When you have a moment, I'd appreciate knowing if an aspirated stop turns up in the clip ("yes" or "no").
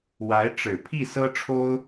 yes